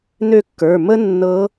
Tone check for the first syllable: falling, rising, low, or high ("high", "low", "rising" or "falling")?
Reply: falling